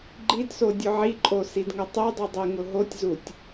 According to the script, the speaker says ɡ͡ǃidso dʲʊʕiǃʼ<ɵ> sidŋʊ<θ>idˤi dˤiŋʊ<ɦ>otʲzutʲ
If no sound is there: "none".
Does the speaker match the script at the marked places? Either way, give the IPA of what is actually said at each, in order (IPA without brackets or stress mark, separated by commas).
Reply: o, tˤ, ɦ